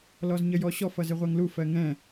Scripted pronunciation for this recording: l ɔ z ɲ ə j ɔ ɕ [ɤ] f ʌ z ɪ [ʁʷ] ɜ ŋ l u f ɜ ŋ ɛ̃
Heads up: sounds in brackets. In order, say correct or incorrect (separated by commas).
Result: incorrect, correct